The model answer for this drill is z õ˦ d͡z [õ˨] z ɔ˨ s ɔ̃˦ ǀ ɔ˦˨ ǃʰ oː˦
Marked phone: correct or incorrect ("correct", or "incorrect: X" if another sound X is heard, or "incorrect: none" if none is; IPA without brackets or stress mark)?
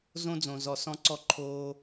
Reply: correct